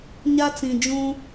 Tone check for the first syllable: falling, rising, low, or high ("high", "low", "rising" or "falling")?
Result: high